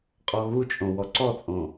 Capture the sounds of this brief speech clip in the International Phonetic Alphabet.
qʼ ɔ ɣ u t͡ʃʼ õ w ɔ ǀ ɔ t͡sʼ õ

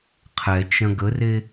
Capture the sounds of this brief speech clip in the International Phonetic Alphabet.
qʰ ɛ t͡ʃ ɐ̃ ɡ ə r e

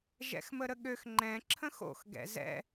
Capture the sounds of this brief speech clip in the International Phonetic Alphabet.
ʒ ɛ̰ x m ə ɾ ə ɠ ø x ŋ͡ǃ ɛ̃ ǁʰ ə̃ x o̰ x ɡ ɛ̰ z ɛ̰

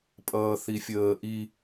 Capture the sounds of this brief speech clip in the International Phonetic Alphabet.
pʼ ʌː θ i fʲ əː ʔ i

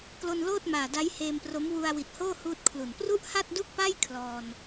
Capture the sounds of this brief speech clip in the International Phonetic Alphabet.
k l o˧ n l oː˥˩ t̚ m aː˨˩ d a˦˥ j h eː˧ m p r o˦˥ m w u˧ a̯ w i˨˩ t̚ h oː˥˩ h uː˥˩ t̚ kʰ l u˨˩ n p r u˥˩ ʔ h a˥˩ t̚ d u˥˩ k̚ p a˥˩ j kʰ l ɔː˧ n

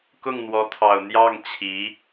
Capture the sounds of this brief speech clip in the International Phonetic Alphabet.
k ʊ˥˩ ŋ n̪ w ɔ˧˥ t̪ʰ ɑ˨˩ ʊ̯ n̪ j ɑ˥˩ ŋ t͡ɕʰ i˧˥

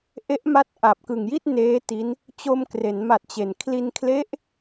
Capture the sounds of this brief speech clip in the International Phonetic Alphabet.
ʔ e˦˥ ʔ m a˦˥ t̚ ʔ a˨˩ p̚ k ɯ˨˩ ŋ j i˥˩ t̚ n eː˦˥ t i˦˥ n | t͡ɕ o˧ m k r e˩˦ n m a˨˩ t̚ t͡ɕ e˩˦ n kʰ l i˧ n kʰ l e˦˥ ʔ

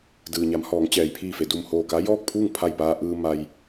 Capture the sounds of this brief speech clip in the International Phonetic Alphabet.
d ɯː˩ ɲ a˩˧ m h ɔː˩˧ ŋ t͡ɕ ɛː˩ j pʰ iː˧˩ f e˩ d u˧˩ m h oː˧˩ k a˧˥ j ɔː˥˨ k̚ pʰ uː˥˨ ŋ pʰ a˧˩ j p aː˧ ʔ ɯː˧ m a˧ j

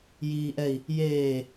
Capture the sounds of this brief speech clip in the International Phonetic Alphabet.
j iː ʔ ɛ i̯ | j eː

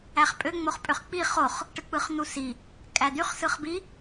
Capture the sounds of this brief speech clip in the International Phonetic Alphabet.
æ χ pʼ ø ŋ͡m o χ pʼ ø χ k͡p i χ o χ | ʈ ɯ k͡p ɯ χ n̪ u s i | kʼ æ d̪ y χ s ɯ χ b i

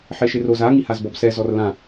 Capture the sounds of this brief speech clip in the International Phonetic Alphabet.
ħ e ʃ e r o z a ŋ i h a z b ɔ b s ɛ z ɔ r l ã

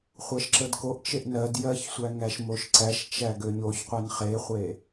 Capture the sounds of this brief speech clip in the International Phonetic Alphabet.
χʷ ɜ ʃ ǁ ə d k o ʔ t͡ʃ e ʔ n ɜ d j ɜ ç sʷ æ ŋ æ ʃ m o ʃ ǀ æ ʃ t͡ʃ æ ɡ ø ɲ o ç qʷ e n χ e χʷ e

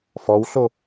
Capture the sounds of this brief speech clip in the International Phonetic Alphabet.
f ɔ w ɬ o

